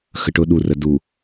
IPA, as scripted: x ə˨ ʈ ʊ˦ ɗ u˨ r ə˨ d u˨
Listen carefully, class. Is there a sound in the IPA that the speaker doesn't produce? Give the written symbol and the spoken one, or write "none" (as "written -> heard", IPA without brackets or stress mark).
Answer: none